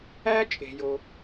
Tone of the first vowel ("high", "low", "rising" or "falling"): high